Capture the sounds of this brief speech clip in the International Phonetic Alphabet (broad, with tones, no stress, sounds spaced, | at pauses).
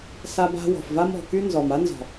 s a˧ b a̤˧ w ɔ̤˨ f v a˦ m ɔ̤˨ k y˦ n z ɔ˨ m a˦ n z ɔ̤˨